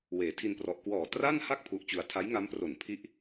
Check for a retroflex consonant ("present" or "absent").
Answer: absent